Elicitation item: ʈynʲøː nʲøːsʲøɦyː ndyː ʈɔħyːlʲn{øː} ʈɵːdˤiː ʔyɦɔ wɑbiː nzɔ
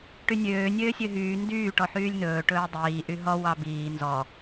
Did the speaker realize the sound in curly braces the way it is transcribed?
no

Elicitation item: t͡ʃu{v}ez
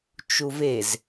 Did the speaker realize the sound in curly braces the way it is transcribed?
yes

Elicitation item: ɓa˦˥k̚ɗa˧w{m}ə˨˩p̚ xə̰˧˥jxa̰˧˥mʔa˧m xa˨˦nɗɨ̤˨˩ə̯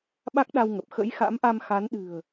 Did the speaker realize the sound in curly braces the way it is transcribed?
no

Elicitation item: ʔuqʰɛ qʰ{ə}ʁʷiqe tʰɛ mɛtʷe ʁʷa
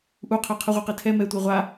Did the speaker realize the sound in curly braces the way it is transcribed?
yes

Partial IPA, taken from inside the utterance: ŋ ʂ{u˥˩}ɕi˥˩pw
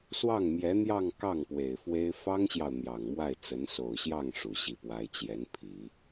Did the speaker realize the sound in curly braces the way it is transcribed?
no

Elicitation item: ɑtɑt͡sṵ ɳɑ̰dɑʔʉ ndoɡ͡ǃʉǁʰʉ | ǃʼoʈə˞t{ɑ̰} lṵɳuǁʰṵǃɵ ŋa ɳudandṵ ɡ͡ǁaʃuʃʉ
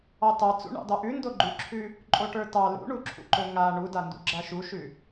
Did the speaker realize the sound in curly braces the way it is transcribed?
no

